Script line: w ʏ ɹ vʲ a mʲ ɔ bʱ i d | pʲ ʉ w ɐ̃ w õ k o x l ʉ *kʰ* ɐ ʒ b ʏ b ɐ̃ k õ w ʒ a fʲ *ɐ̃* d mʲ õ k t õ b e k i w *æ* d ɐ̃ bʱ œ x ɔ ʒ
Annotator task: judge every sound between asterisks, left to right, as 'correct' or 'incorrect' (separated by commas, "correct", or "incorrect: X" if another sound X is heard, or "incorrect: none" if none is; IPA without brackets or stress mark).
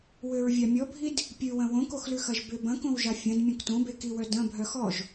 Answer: incorrect: x, correct, incorrect: œ